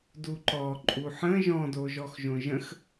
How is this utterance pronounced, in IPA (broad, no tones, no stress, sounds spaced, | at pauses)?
d u ǃ ɔ ǃʼ u ħ ə̃ ʒ ɔ̃ d o ʒ ɔ x ʒ õ ʒ ə̃ x